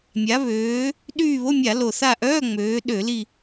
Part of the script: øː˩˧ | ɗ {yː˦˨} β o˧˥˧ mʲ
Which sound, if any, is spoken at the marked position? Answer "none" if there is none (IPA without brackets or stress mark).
yː˦˨